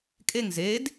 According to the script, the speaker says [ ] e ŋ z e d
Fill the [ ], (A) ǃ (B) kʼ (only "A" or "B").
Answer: B